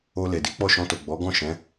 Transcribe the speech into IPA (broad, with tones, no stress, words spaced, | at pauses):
o˧le˨di˨˦ k͡pɔ˦˨ʃɔ̃˧to˨ ɡ͡bɔ˨˦ ɡɔ̃˦˨ʃɛ̃˨˦